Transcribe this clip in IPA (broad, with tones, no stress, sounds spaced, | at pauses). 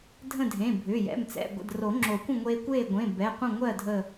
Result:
dʱ ə̃˥˨ dʱ ẽ˩˧˩ bʱ ʏː˩˧˩ j ɛ̰˩˧˩ m t͡s ɛ̰˩˧˩ ɡʷ ə̰˩˧˩ d r o˨˩˦ ŋ͡ǁ o˨˩˦ kʷ ə̃˥˨ ŋʷ eː˧ kʷ eː˥˨ ɡʷ ẽ˩˧˩ b ɛ˩˧˩ qʷ ə̃˥˨ ŋʷ ɜː˥˨ dʱ ə˧˩